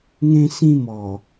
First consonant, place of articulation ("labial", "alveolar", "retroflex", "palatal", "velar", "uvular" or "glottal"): velar